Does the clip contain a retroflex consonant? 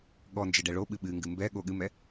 yes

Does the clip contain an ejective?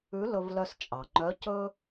yes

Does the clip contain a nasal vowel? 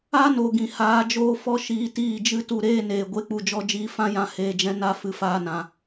yes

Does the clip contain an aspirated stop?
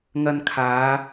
yes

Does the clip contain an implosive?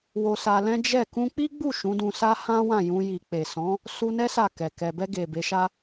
no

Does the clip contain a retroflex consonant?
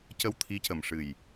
yes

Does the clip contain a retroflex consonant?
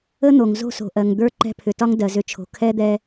no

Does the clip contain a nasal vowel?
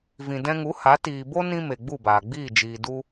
yes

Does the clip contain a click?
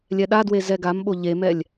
no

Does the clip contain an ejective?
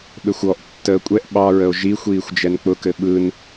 yes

